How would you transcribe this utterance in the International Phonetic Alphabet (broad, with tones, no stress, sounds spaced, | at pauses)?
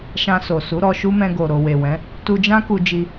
ʃ ã˧ s o˨ s u˨˦ ɾ ɔ˧ ʃ u˦ m ɛ̃˧ ɡ o˨ ɾ o˨ w e˨ w ɛ̃˨˦ | t u˧ d͡ʒ ã˦ k u˧ d͡ʒ i˧